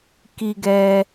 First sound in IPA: k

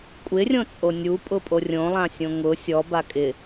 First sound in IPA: kʷʼ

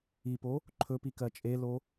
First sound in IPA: i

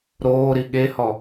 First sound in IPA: ɾ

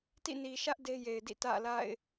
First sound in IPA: t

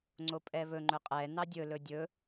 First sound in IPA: ŋ͡ǀ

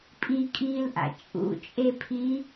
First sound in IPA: pʼ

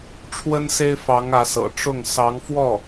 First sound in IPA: ʈ͡ʂʰ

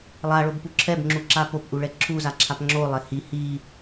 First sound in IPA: lˠ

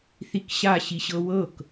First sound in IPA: θ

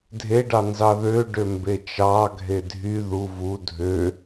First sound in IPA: dʱ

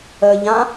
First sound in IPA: ə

